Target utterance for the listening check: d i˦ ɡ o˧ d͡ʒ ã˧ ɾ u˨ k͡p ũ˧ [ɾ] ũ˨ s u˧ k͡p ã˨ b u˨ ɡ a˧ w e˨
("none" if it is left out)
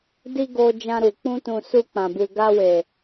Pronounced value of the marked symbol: t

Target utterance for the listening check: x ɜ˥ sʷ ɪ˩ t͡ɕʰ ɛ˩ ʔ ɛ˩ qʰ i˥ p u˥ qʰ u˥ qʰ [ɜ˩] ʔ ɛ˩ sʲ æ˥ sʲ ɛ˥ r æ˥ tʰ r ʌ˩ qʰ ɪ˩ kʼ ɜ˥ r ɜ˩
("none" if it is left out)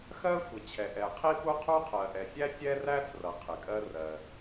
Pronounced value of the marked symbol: ɜ˩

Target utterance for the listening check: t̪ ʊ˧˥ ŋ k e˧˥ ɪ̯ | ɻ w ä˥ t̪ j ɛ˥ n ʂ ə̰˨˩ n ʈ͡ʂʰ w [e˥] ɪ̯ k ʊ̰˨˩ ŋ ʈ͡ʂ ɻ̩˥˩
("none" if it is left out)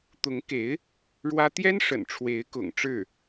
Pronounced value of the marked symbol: e˧˥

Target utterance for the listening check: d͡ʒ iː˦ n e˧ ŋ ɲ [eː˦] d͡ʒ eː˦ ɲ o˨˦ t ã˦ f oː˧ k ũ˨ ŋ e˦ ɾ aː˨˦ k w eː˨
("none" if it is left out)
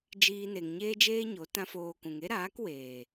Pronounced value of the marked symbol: eː˦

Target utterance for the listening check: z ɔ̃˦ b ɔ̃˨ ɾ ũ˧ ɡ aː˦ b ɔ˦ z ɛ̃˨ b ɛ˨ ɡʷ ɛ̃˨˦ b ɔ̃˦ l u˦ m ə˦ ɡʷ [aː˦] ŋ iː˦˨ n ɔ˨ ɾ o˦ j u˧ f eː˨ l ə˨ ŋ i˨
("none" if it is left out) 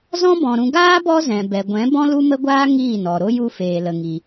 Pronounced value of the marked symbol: aː˦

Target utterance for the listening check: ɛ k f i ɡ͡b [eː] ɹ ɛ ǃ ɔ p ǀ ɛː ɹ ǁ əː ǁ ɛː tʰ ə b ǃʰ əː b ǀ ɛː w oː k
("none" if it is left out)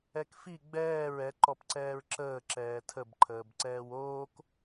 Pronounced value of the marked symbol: ɛː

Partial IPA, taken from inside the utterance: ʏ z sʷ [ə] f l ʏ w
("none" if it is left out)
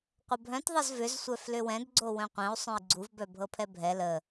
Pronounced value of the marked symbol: œ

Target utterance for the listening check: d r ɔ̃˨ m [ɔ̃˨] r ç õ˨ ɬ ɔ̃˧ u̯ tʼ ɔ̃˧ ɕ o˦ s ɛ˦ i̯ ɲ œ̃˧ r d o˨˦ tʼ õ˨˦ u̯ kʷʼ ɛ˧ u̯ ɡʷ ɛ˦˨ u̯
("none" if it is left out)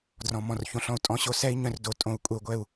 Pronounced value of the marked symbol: ɔ̃˨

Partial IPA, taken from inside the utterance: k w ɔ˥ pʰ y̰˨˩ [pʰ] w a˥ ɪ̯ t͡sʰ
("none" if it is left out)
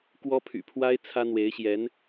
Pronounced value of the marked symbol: pʰ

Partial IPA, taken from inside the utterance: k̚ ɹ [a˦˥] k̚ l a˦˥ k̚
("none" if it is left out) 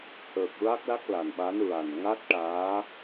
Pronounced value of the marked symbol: a˦˥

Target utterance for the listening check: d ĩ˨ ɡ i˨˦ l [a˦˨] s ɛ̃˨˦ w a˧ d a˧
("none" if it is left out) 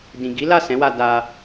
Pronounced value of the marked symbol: a˦˨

